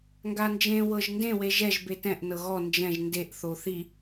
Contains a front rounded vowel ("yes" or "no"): no